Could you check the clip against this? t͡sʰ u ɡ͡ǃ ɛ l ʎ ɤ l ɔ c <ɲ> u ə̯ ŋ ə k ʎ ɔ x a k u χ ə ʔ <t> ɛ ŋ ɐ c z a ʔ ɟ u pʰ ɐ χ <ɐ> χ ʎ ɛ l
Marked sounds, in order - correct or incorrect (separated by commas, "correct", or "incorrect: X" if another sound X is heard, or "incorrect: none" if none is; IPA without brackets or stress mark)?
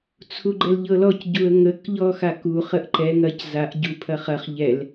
incorrect: ɟ, incorrect: ǃ, correct